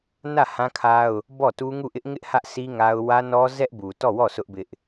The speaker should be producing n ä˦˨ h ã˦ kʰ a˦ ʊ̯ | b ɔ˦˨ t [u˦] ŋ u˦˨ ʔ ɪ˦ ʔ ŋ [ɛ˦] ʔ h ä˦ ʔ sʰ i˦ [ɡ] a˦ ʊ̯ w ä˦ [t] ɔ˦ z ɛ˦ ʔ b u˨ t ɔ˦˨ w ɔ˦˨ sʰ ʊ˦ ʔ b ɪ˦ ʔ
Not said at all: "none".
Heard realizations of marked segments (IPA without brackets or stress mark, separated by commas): u˦, ɪ˦, ŋ, n